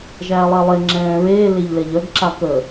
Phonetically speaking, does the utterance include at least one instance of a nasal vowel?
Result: yes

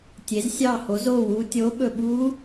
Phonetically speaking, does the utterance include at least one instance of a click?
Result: no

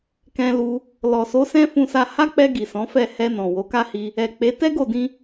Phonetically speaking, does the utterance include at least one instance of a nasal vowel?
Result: yes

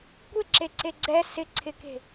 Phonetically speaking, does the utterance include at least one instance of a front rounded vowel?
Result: no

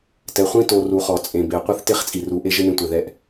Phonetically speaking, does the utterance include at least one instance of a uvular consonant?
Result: yes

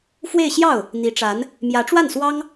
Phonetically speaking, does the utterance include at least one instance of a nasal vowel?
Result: no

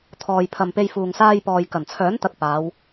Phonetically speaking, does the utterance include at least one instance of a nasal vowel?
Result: no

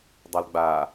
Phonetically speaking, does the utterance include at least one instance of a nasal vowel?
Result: no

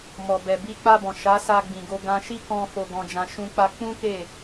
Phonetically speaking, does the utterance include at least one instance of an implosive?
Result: no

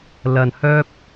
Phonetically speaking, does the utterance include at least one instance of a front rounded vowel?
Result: yes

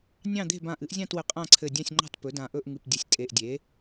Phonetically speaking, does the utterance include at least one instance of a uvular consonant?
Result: yes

